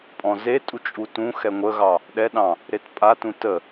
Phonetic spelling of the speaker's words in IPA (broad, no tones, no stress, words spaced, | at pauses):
pʼɔ̃zetʼu t͡ʃʼutũ xɛŋʷəɣɑ | ɗɛɗɑ̃ | ɾetpʼatũ tə